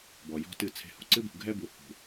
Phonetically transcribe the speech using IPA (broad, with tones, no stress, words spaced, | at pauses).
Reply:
bɔ˨jɔ̤˦tɨ˦˨ t͡sʰe̤˨hṳ˨ǀɨ˦bṳ˨ ɡʱɛ˦bu˨ hṳ˨